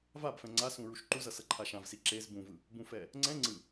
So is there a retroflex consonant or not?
no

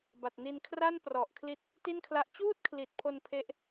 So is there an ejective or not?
no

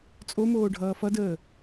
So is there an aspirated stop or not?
no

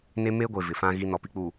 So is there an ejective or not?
no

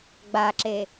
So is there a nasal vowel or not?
no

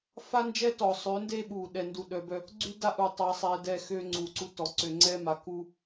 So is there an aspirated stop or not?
no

